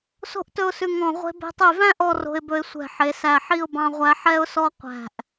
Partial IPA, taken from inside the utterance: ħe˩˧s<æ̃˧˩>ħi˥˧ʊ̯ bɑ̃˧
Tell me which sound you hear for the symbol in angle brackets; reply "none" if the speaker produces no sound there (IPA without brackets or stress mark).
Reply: æ˧˩